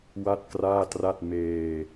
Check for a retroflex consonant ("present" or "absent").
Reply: absent